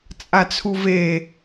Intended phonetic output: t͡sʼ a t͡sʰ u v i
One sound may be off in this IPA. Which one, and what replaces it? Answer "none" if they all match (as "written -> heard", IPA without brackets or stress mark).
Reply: i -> e